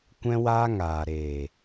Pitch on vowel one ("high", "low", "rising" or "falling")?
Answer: high